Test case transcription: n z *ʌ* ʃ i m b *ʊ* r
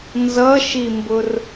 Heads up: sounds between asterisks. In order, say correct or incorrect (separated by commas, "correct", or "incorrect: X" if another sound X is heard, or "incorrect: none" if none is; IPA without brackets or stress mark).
correct, correct